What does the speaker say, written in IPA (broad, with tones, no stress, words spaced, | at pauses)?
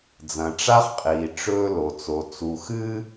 d͡zɐ̃˨ʈ͡ʂa˦χqʼiː˨ ʈ͡ʂɵː˦ lo˨t͡so˨ t͡su˨xɨː˦